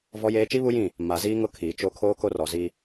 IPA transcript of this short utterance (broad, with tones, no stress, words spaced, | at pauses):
vɔ˦jeː˦ t͡ʃi˦βu˦jĩ˦˨ | ma˨ziː˦ŋʊ˦ kʰiː˨t͡ʃo˦ kʰoː˦ko˦rɔ˨zi˦